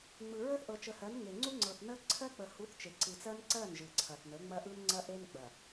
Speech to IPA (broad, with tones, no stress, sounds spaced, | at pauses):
ŋ͡m ɯ˨ ɹ ə˦ θ ʔ ɤ˨ t͡ʃ ə˨ h ɜ˨˦ n ŋ e˨ ŋ͡ǀ u˦ ŋ͡ǀ ɤ˨ θ n ə˦ ǀʰ ɜ˦ k͡p ə˨ h u˨˦ θ t͡ʃ e˨ ǀ ɯ˨ t͡s ɜ˦ n ǀ ɜ˦˨ n ʒ ɯ˨ ǀʰ ɐ˨ θ n ə˨˦ ŋ͡m ɐ˦ ʔ ɯ˦ n ŋ͡ǀ ɐ˦ ʔ e˦ n ɡ͡b ɐ˨